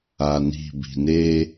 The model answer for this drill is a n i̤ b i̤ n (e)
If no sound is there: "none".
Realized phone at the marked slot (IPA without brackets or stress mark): e